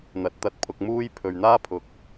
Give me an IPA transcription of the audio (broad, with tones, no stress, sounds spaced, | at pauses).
n̪ ɐ˨˥ t̚ t̪ ɐ˧ t̚ pʰ ʊ˧ k̚ m uː˥ j pʰ ɵ˨ ɥ n̪ aː˥ pʰ ʊ˨ k̚